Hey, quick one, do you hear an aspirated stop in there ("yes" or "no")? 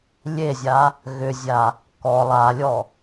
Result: no